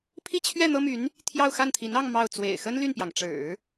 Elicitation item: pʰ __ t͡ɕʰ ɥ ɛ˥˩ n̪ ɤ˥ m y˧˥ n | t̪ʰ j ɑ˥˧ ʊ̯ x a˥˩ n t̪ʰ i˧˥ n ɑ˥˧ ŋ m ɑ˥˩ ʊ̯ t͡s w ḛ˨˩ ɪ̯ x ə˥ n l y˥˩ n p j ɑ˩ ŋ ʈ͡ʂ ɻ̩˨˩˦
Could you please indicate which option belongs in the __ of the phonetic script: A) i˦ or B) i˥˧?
B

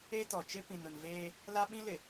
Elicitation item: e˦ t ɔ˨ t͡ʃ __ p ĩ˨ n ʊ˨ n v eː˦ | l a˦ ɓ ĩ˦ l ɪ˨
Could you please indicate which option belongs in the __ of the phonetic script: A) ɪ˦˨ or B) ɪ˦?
B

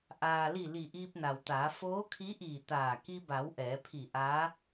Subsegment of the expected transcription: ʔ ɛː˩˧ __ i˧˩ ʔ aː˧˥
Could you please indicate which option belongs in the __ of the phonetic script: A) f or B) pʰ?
B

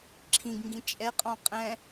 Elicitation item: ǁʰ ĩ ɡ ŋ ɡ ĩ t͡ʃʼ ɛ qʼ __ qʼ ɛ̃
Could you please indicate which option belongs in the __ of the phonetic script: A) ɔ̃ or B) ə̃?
A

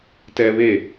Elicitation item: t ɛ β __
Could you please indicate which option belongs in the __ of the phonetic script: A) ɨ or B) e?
B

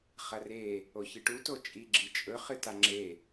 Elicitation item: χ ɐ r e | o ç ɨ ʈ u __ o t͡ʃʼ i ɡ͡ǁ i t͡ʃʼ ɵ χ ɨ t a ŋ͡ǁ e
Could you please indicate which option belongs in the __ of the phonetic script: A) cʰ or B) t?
B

